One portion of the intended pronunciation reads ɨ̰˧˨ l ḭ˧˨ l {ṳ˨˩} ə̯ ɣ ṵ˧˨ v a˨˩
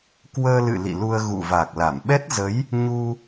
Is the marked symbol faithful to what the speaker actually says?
no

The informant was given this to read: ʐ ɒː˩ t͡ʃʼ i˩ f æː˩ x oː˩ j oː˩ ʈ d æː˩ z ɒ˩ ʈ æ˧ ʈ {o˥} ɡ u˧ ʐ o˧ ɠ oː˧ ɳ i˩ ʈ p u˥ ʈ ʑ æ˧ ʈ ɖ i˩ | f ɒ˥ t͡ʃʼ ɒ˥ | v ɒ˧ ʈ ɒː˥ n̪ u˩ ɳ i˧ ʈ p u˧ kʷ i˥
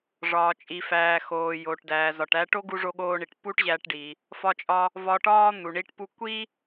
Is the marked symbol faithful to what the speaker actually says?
yes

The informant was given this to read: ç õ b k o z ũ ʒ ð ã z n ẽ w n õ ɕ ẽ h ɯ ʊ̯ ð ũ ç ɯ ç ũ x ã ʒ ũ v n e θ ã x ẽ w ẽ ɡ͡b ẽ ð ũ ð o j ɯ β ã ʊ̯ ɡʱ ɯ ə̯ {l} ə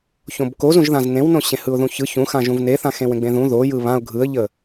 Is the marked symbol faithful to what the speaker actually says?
no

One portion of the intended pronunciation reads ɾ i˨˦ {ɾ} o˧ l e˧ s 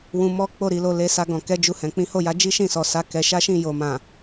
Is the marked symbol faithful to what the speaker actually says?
no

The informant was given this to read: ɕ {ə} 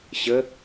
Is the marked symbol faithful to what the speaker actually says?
yes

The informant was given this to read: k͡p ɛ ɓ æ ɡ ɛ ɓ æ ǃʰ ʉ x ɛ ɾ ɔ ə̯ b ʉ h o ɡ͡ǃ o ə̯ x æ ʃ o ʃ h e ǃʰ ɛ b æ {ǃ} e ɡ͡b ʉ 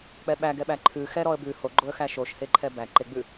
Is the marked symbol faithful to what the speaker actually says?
yes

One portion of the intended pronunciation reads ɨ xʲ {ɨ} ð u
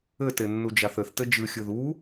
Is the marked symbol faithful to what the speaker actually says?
yes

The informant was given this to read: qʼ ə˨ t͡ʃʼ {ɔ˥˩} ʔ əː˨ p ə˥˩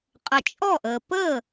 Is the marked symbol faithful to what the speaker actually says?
yes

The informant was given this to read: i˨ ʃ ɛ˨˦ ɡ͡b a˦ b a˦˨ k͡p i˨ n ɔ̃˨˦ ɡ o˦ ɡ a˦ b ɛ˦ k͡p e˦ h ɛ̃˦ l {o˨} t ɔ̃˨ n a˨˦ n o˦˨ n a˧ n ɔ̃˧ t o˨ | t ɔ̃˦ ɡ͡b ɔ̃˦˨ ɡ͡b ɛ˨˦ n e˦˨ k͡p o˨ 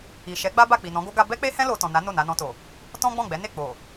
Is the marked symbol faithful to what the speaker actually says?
no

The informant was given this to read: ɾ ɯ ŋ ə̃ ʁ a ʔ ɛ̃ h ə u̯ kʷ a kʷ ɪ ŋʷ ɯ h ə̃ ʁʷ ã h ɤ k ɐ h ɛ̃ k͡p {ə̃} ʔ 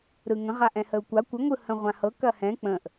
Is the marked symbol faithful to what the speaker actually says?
yes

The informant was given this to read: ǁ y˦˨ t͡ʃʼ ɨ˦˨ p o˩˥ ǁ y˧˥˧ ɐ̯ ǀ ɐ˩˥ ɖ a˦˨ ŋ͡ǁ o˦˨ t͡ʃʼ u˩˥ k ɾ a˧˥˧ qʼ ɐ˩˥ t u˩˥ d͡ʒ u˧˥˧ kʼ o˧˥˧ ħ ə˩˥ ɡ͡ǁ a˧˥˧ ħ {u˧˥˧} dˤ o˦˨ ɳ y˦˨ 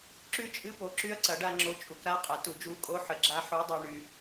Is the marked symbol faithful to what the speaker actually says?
yes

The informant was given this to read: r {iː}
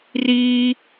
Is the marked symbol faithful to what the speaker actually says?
yes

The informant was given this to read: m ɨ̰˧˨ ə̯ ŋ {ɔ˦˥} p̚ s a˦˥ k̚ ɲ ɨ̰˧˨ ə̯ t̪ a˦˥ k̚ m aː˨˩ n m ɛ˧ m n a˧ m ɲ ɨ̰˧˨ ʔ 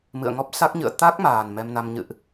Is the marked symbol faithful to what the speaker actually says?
yes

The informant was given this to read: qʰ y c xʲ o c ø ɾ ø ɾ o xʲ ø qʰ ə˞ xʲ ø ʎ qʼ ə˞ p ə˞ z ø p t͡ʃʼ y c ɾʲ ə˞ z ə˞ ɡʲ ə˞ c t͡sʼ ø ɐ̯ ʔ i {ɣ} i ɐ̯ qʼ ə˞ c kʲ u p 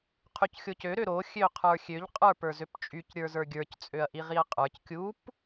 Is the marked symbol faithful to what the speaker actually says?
no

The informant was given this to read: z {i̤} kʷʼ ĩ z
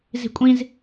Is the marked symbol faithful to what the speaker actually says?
yes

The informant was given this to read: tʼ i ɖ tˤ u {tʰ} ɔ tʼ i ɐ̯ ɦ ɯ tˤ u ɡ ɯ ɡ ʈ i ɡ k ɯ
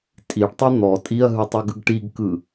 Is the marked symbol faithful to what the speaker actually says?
no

